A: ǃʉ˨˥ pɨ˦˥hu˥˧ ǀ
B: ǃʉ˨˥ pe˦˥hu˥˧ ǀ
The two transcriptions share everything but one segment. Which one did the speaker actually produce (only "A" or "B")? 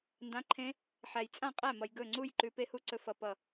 B